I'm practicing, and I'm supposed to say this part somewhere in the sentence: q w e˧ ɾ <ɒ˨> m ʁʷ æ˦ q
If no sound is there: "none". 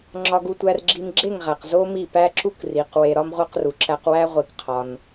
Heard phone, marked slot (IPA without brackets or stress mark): ɒ˦